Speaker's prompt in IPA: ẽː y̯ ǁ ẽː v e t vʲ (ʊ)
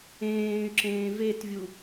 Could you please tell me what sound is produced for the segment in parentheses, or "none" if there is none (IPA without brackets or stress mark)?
u